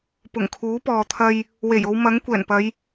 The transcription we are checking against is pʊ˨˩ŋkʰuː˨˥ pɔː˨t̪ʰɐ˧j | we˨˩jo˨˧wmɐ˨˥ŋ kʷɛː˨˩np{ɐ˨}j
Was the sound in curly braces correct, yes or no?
no